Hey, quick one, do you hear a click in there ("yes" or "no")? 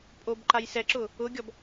yes